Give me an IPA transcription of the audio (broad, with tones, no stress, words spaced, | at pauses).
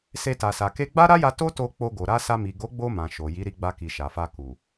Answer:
se˧ta˨sa˨ ke˧ɡ͡ba˦ɾa˦ja˧ to˦to˧ k͡po˧ɡo˨ ɾa˧ sa˧mi˨ ɡo˨˦ɡ͡bo˧ mã˨ʃo˨ ji˨˦ɾi˧ɡ͡ba˧ki˨ ʃa˨fa˧ ku˨